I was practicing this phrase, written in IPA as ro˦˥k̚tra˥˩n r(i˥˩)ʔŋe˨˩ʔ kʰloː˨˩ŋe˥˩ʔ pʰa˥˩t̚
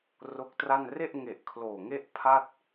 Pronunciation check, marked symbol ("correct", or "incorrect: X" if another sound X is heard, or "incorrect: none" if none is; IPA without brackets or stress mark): incorrect: e˥˩